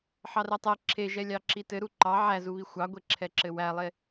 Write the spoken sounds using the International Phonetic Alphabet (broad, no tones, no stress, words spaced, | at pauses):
ħɑrɛtˤɛ ǁʰe ʒɛlʲɑǁitɘ ɾuǃɑ ʕæzuβi xʷɑɡʷeǁʰɛ ǁɘwælˠe